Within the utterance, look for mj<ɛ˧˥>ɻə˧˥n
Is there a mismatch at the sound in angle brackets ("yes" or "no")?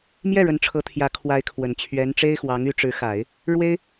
yes